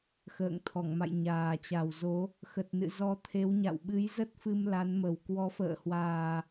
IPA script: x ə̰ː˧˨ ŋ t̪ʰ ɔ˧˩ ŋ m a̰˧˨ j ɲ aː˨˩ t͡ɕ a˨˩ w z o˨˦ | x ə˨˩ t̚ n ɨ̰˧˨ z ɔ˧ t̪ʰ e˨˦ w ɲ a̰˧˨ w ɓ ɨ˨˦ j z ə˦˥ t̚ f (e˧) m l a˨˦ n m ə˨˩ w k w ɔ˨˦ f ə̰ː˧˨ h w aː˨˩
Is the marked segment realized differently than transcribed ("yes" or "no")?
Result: yes